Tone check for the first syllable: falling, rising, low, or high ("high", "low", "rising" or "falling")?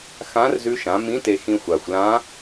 rising